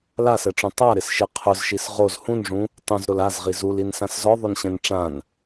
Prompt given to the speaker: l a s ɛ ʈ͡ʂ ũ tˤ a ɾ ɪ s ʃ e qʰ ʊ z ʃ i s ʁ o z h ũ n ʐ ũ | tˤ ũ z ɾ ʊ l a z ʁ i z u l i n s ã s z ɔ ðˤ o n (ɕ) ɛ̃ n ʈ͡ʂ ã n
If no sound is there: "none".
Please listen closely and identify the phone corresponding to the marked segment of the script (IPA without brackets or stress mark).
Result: ɕ